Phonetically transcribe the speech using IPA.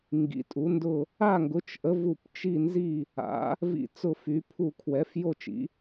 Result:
ŋ ɡ ḭ˨˥ tʼ u˨˥ n d ʊ˥˧ | a˥˧ ŋ ɡ ʊ˨˥ t͡ʃ ʔ ə˨˥ v u˥˧ p t͡ʃ i˥˧ n z i˥˧ | a̰˨˥ | v ḭ˥˧ t͡s ʊ˥˧ f y˨˥ pʰ u˥˧ kʰ w ɛ˨˥ f j o˥˧ t͡ʃ ḭ˨˥

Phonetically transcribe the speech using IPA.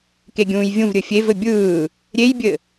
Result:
k e ɡʲ ũː j vʲ ũ v ɾʲ ɘ fʲ e v ɘ bʲ ɯː | ɾʲ e j bʲ ɘ

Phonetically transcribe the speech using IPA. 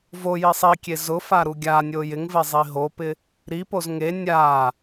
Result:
v o j i sˤ i kʲ e z ʊ f a ɾ u ɡʲ a nʲ o j ɪ ŋ v e zˤ i ɦ o p ɪ | ɾ i p o z ŋ e nʲ a

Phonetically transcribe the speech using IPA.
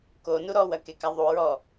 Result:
k o n u ɾ ɔ w ɐ k e k a ðˤ u ɹ ɔ

